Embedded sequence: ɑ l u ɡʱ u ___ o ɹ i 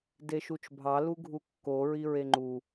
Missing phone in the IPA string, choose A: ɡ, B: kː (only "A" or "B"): B